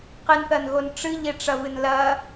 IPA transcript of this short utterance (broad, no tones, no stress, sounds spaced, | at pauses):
q ɨ n θ ɐ n ɣ o n ʈ͡ʂ ɨ ʎ e ʈ͡ʂ ɐ v ɨ n l ɐ